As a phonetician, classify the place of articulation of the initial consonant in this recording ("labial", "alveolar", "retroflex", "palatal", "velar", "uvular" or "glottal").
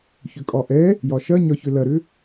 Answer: palatal